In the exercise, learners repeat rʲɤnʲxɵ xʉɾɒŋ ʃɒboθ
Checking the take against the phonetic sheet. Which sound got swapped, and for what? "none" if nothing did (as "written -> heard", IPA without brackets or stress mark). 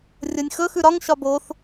none